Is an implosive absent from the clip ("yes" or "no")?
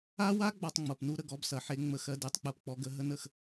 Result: yes